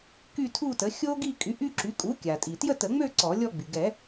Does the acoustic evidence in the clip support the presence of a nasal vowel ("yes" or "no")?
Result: no